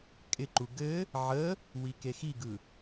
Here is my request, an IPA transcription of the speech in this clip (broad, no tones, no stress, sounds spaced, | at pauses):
kʼ ɪ ǃ u ɡ ɘ | ʕ ə | w i k e x i ɡ ɯ